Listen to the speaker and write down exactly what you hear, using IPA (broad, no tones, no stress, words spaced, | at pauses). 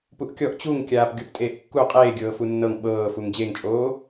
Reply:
puʔkʲɔʔ t͡ɕuŋ kʲaːpɡʲoptʼeːʔkːu qʼeːɡʲɤːfu nːɤŋ ɓɤː fuŋd͡ʑeŋt͡ʃʼoː